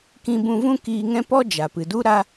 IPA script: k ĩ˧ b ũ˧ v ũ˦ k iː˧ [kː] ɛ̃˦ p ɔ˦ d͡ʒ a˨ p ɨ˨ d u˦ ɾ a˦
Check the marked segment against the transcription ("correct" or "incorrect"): incorrect